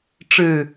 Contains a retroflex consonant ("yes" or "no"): yes